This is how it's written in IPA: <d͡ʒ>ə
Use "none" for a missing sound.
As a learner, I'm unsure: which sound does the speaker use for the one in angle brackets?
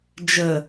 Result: d͡ʒ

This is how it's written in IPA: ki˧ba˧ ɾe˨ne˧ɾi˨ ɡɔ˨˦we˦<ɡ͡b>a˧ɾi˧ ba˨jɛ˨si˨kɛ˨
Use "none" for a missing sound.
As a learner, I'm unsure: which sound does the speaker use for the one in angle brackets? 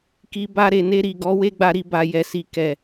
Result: ɡ͡b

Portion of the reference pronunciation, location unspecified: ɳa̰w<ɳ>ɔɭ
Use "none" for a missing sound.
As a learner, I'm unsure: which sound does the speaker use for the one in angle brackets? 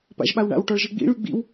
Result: ʈ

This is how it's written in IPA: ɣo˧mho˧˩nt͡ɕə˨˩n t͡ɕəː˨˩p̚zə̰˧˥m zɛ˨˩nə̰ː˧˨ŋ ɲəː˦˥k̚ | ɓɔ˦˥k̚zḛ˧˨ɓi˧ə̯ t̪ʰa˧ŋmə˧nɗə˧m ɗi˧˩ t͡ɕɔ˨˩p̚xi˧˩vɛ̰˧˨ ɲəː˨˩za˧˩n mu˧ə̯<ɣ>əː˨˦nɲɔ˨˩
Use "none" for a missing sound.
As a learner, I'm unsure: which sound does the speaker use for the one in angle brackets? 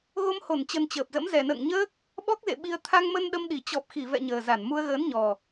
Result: ɣ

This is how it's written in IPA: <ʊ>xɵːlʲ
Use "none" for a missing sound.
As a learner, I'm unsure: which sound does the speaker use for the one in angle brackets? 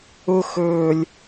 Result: ʊ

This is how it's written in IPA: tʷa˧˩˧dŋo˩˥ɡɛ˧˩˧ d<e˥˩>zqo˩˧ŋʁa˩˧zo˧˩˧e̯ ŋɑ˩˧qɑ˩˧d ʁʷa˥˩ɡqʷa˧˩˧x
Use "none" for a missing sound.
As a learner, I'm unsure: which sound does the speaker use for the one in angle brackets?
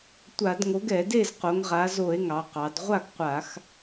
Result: e˥˩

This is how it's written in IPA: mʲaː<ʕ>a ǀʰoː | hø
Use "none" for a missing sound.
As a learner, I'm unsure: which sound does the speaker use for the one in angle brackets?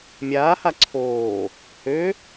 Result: h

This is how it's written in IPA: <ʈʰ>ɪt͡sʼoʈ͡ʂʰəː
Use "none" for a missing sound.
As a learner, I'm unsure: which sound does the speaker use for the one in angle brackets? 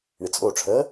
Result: ɳ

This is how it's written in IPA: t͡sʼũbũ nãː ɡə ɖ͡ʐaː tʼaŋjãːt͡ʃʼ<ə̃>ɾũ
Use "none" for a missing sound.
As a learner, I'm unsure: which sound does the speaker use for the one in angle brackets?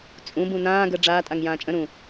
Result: ə̃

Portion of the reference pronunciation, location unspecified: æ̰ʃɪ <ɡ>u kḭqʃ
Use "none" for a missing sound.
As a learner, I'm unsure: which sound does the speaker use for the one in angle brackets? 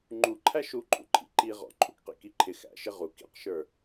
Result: ʁ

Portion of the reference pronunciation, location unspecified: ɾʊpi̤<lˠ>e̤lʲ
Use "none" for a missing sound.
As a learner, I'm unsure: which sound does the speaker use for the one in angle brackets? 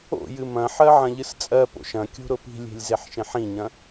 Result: lʲ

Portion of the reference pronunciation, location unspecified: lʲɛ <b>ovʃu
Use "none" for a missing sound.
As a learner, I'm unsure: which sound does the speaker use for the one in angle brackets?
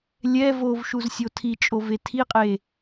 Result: v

